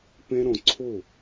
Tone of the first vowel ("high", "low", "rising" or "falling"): high